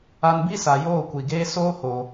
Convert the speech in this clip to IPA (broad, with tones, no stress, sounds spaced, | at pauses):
a˧ n b i˦ s a˨ j oː˦˨ kʷ i˨ ɡ eː˦ s oː˦ h o˨